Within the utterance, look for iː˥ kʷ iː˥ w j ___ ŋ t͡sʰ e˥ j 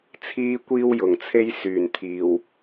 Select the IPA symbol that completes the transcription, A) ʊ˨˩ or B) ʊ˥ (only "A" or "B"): A